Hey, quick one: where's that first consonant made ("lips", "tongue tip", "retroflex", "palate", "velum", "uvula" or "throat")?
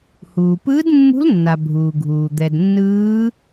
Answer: throat